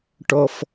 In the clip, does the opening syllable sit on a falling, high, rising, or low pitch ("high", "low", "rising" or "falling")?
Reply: low